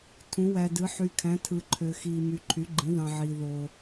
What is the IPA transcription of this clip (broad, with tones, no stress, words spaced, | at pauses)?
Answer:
tʰũ˩˥wæ˨dɯ˩˥ ħy˨kʰæ̃˩˥ tʰɯ˨ǃʰø˨xiː˨my˨ ǃʰy˩˥ɡ͡ǃĩ˩˥ ðɑ̃˨ʕiː˨ ðoː˨